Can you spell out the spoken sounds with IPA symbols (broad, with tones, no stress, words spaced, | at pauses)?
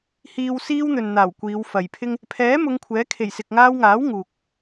hiː˨wsiː˧w n̪ɵ˨nn̪aː˨˩wkʷiː˨˧w fɐ˨jpʰɪ˥ŋ | pʰɛː˨˥ mʊ˨˧ŋkʷʰɛː˨˥kʰe˨˩j sɪ˨k̚ŋaː˧wŋaː˨˥w ŋuː˨k̚